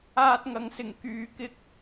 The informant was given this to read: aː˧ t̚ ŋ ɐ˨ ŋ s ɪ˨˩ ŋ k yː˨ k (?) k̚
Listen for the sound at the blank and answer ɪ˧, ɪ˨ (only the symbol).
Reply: ɪ˧